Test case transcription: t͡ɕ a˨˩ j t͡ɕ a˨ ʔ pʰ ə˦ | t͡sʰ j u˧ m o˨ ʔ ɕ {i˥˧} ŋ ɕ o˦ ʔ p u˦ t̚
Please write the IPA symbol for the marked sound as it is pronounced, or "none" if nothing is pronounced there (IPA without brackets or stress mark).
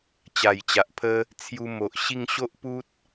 i˥˧